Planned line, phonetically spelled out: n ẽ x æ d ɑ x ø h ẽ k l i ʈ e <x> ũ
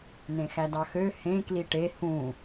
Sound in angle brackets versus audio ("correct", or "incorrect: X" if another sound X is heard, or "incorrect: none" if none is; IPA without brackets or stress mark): incorrect: h